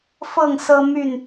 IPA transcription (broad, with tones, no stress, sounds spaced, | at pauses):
f ɤ˥˨ ŋ s ɤ˦ m y˥˨ n